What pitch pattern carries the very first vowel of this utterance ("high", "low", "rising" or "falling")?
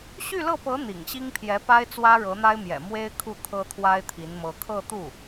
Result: falling